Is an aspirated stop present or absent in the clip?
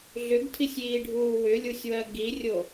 present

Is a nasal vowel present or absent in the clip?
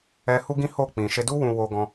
present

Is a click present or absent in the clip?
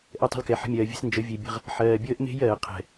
absent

